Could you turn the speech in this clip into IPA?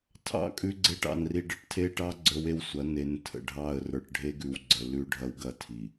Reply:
tʰɑ̰˦˨kʼʉ˦ɡ͡ǀe˦ʈ ɑ̰˨n ri˨ɖə̰˦ʈtʰe˦ʈɑ˦ ɡ͡ǀə˞˦we˦wsʷɐ˨˦ ne˨n tʰə̰˨ɖʱɑ˦˨ə̯rə˞˨ʈ ɖʱe˦ɡʉ˨wɡ͡ǀə˨ lʉ˦ɖʱɐ˦w ɡɐ˦tʰi˨

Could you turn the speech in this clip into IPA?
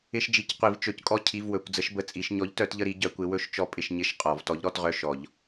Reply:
ɪ˧˥˧ʃd͡ʒi˨˥c qʷi˨˩˦vt͡ʃɵ˨˩˦ckʼɔ˦˨ cʰi˧˥˧vwɵ˨˩˦kʷ d͡zə˨˥ʃbə˧˥˧t͡sʼi˨˩˦ʃ ɲɔ˨˥ʎtœ˨˩˦tʎə˦˨ ɾi˨˥ɟœ˨˩˦kʷɪ˨˥ wɵ˦˨ʃt͡ʃɔ˦˨ pʼɪ˦˨ʃɲɪ˦˨ʃ qʼɔ˨˩˦v tɔ˨˥ʎɾɔ˧˥˧tʁœ˧˥˧ʃɔ˨˩˦ʎ

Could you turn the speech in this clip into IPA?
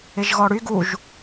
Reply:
ɪʒɣɔɽy ɡuʒ

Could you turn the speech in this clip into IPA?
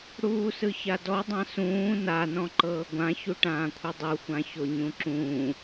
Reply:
ɽuːsɯçadɔ dˤãsũː na nɔ̃ǃɤːɡʷã çuʈãːkʷʰɯdˤu xʷãçoɲũǁũː

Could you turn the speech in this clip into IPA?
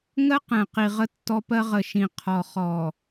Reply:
ŋɜ˦qɛ̃˨ qi˨ʁə˦tːɔ˦pɜ˦ ʁə˨ʃĩ˨ qʰɔ˨χɔ˨

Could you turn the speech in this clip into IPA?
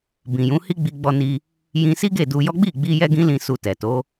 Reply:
bĩ˨jũ˨˦ hi˦ɡ͡bi˧ɡ͡bɔ˧ni˧ | jĩ˧si˦ ɡe˦˨du˧jɔ˦ ɡ͡bi˦˨ɡ͡bi˧ jɛ˦ɡĩ˦lĩ˧ su˧tɛ˨to˨˦

